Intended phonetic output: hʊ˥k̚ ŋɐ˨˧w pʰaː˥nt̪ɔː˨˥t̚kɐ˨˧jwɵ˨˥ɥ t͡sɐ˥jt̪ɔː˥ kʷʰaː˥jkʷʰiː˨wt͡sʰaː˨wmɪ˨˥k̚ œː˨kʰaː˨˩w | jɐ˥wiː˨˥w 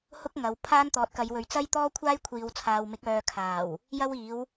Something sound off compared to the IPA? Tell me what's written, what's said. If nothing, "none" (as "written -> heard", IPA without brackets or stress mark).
none